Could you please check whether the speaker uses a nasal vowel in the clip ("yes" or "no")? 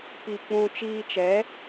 yes